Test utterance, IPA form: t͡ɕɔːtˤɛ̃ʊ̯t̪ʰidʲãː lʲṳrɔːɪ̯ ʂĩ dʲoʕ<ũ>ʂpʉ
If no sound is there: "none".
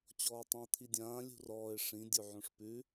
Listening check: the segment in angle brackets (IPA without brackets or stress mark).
õ